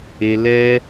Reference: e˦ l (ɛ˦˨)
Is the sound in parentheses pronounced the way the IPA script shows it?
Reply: no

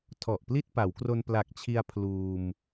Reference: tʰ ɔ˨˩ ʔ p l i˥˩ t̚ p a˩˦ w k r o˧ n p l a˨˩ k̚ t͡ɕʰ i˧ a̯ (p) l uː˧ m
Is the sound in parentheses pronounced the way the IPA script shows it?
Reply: no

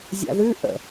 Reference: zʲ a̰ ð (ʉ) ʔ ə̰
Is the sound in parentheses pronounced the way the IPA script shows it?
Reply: yes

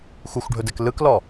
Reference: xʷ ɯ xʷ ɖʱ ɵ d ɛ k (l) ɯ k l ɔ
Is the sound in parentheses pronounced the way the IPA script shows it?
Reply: yes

